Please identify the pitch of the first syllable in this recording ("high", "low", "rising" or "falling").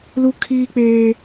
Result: high